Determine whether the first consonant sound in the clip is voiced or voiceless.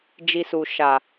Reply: voiced